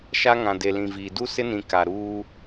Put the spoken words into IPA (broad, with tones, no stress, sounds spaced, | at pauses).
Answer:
ʃ a˦ ŋ ã˨ d e˨ l ĩ˨ v iː˨ d u˦ s ɪ˦ n ĩ˨ k a˨ ɾ uː˦